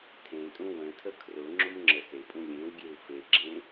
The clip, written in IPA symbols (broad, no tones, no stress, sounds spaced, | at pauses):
tʰ ẽ tʼ ũ w ə̃ tʰ ə kʰ r ʊ ŋ͡ǁ ʊ m ŋ͡ǁ ə s e pʼ ũ lʲ ẽ w ɡʲ e w f e ɡ͡ǁ ẽ